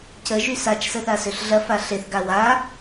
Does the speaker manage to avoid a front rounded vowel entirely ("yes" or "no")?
no